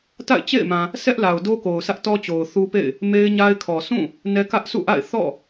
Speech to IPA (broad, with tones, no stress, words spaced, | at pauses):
ta̰˦˨ɪ̯t͡ɕḛ˦˨ɪ̯ mã˨ | sɛ˦ʔla˨ʊ̯do˦ko˨ʊ̯ sʰä˦ʔtɔ˦ t͡ɕo˨ʊ̯θu˦pḛ˦˨ɪ̯ | me˦ɪ̯ɲa˦ɪ̯kʰɔ˨ sũ˦˨ | nɛ˦ kä˦ʔsṵ˦˨ʔa̰˦˨ɪ̯ θɔ̰˦˨